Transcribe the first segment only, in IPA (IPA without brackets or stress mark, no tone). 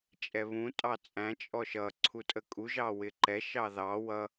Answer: t͡ʃʼ